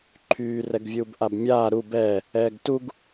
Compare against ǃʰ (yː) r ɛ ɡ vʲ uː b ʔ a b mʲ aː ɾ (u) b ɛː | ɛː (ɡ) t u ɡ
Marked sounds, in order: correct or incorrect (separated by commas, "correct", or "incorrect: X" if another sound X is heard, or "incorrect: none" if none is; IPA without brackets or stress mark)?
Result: correct, correct, correct